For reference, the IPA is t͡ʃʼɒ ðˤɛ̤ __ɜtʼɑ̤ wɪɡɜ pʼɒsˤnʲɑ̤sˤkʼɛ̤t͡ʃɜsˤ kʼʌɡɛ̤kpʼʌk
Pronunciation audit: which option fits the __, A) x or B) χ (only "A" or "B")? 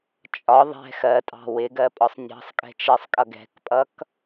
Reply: A